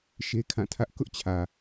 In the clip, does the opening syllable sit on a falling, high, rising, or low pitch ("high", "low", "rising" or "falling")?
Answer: high